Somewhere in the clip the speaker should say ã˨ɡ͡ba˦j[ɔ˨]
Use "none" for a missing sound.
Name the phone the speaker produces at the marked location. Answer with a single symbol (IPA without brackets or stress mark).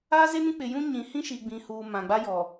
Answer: ɔ˨